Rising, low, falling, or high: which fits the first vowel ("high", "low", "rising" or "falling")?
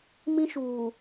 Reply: high